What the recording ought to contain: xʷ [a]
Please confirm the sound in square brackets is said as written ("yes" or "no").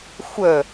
no